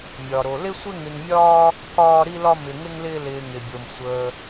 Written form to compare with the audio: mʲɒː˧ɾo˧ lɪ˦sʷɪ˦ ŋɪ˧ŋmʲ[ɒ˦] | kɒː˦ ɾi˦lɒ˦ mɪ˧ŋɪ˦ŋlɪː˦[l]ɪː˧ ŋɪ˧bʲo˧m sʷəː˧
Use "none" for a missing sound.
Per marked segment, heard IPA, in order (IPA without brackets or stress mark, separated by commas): ɒː˦, l